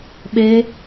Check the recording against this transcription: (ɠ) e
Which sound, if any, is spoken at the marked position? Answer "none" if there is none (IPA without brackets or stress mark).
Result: ɓ